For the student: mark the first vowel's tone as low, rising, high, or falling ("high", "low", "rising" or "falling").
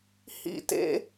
falling